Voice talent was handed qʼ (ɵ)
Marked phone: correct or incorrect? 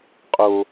incorrect